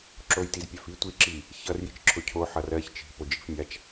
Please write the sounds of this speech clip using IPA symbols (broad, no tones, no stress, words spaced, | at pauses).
ǁojtizpʲafi tʷiǁi | çʌr jit͡ʃǁʰʊcʰo ħʌrɜç t͡ʃi̤ pod͡ʒi̤fmʲat͡ʃ